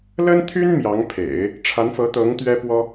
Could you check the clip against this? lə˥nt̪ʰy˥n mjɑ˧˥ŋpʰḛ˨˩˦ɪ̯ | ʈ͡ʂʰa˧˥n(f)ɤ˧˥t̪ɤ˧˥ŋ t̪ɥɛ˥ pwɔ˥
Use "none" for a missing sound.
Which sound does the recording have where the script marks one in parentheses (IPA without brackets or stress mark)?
f